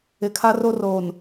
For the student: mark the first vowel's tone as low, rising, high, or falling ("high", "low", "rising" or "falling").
low